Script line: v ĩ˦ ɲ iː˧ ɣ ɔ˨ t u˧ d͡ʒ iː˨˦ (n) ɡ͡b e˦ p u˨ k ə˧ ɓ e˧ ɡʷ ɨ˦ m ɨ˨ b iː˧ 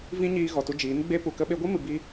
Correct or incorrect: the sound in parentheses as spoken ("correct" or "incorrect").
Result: correct